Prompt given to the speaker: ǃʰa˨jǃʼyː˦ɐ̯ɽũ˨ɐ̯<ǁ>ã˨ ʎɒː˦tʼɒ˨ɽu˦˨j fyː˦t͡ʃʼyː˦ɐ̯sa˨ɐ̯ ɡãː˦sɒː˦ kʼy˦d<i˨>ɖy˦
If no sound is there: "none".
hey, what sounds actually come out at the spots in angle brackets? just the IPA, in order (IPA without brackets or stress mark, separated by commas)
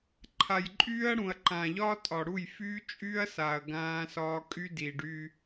ǃ, i˨